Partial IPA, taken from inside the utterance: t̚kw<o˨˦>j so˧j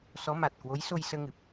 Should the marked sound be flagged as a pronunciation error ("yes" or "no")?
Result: no